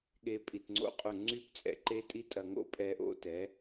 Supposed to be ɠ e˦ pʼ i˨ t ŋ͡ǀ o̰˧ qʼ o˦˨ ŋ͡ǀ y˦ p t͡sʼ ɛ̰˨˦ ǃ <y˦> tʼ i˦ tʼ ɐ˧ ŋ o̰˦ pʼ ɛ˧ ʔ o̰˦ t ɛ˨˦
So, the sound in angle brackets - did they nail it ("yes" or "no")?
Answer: no